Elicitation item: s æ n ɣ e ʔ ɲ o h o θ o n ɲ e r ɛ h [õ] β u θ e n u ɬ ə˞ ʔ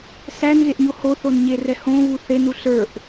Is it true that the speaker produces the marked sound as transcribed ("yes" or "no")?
yes